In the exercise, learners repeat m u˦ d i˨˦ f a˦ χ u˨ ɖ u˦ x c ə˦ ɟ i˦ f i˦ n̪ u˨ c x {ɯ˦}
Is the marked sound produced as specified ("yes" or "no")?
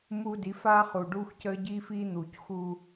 no